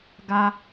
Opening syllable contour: high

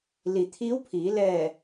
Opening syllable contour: low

